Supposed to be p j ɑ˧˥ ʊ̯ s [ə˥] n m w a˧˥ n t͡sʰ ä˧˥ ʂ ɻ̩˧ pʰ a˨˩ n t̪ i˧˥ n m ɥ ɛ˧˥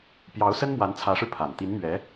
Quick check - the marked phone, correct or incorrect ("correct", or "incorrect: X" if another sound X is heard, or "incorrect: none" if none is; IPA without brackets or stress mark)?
correct